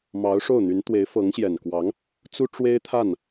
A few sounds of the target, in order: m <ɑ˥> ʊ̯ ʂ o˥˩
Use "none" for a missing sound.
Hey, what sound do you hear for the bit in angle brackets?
ɑ˧˥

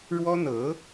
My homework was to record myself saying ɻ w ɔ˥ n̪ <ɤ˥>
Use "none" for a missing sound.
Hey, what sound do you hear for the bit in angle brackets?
ɤ˧˥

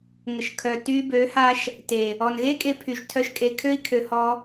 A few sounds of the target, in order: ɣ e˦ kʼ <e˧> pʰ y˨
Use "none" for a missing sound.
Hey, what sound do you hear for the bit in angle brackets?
e˧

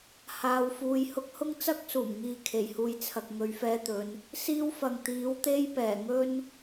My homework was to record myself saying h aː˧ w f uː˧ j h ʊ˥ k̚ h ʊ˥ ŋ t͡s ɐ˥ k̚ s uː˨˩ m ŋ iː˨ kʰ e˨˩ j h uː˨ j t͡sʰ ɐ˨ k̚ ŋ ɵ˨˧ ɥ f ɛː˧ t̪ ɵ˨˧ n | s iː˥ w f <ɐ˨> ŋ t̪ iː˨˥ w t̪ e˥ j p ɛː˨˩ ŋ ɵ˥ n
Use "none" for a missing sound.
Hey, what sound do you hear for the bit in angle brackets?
ɐ˨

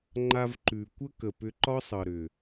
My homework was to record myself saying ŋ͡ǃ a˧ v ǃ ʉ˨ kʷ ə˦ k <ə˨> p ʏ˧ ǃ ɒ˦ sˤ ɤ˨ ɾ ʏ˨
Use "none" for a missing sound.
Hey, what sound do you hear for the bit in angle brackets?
ə˨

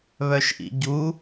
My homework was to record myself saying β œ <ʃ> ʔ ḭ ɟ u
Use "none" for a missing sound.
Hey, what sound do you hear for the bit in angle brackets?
ʃ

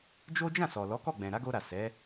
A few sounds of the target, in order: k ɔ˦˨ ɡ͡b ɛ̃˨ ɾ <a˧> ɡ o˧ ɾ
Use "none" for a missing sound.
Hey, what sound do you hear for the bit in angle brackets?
a˨˦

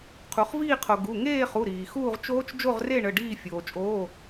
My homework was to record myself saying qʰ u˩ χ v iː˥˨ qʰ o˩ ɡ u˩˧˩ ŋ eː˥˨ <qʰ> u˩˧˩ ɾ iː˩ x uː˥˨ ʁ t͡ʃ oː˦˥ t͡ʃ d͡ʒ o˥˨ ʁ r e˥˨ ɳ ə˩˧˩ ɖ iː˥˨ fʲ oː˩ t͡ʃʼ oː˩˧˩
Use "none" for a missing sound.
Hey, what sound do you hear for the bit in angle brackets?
χ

